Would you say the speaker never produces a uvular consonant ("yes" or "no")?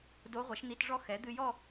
no